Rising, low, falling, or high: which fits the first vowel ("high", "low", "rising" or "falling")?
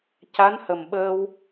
rising